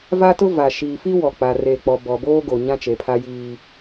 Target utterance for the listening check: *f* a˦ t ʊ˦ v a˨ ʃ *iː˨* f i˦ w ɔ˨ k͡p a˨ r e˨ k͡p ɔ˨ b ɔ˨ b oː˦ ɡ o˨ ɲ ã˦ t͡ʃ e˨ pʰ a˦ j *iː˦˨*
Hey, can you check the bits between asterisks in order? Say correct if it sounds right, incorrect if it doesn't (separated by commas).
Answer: incorrect, correct, incorrect